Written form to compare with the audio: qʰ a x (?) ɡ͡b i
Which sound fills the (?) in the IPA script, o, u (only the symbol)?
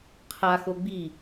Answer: o